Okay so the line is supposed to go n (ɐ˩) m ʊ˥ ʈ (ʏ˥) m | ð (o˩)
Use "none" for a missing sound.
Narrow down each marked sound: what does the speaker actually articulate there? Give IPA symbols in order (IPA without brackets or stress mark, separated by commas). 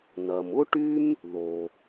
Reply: ɐ˩, y˥, o˩